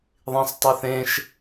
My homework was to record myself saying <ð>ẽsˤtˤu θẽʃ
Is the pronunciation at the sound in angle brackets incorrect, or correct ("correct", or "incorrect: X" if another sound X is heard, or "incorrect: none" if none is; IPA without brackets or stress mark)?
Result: incorrect: ðˤ